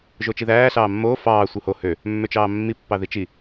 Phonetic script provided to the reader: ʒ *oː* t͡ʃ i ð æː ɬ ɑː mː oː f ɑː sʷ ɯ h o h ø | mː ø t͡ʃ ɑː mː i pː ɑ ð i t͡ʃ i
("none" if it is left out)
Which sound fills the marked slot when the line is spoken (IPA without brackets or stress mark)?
o